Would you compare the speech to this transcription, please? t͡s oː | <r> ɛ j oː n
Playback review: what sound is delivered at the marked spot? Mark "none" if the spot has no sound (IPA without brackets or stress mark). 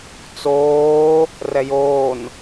r